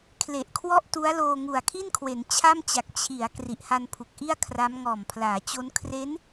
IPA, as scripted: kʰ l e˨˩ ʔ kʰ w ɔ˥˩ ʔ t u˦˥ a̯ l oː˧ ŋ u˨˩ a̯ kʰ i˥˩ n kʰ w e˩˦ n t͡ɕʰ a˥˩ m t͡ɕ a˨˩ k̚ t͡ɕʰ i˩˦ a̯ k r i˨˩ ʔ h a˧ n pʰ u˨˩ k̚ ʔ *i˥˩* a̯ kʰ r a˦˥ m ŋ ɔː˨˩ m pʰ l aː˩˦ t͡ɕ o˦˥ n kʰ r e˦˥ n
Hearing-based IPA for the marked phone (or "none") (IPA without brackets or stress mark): i˥˩